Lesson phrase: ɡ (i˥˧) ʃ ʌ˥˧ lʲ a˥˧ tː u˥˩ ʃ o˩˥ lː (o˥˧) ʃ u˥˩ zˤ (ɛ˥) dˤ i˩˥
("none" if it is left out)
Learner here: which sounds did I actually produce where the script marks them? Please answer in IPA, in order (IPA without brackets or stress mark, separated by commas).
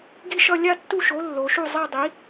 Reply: i˥˩, o˩˧, ɛ˥˧